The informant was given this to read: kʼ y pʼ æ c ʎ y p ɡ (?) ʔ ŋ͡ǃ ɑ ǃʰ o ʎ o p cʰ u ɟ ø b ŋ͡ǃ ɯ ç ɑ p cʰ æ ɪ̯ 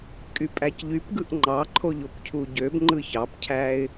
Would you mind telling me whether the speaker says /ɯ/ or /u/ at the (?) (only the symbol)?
ɯ